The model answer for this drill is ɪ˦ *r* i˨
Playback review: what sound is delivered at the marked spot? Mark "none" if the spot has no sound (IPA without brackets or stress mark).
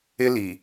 l